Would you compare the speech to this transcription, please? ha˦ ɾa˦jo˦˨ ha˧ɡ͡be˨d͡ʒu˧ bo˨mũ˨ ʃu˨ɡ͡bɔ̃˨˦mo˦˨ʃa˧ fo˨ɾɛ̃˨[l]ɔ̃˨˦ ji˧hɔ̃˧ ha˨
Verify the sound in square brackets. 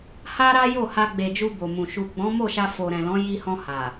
correct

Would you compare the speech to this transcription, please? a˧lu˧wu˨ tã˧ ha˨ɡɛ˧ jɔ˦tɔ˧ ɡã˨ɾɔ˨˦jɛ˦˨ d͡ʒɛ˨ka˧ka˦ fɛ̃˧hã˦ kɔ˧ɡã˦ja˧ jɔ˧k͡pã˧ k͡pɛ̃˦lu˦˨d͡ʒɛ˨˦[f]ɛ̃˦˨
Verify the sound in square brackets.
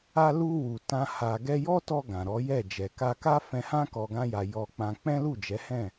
incorrect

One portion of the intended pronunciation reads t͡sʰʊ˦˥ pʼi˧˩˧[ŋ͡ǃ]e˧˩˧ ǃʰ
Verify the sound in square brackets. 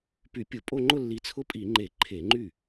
correct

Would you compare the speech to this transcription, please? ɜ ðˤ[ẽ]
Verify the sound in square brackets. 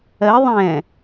incorrect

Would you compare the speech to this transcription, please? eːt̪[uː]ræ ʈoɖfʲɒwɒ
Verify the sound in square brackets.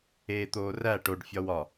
incorrect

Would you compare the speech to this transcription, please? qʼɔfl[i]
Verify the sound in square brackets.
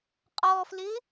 incorrect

